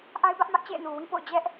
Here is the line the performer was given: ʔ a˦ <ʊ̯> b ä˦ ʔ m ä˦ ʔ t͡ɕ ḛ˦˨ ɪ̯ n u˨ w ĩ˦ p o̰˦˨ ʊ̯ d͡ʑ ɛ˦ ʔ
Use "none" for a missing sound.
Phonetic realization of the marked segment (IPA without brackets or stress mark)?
ɪ̯